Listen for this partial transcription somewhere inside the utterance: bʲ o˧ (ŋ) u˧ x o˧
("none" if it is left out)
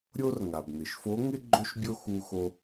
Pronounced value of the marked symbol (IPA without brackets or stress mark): x